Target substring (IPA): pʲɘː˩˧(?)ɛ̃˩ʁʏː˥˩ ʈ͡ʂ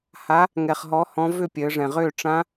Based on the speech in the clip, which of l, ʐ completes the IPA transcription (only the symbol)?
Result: ʐ